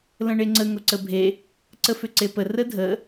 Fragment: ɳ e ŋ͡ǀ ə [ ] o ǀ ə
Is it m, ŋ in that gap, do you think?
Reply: ŋ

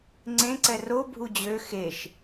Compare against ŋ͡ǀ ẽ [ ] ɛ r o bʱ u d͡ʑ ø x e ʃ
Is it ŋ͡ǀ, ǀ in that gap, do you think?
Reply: ǀ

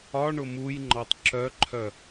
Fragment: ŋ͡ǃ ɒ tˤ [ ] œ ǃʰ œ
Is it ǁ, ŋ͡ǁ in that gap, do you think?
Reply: ǁ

